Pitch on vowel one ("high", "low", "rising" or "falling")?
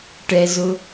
low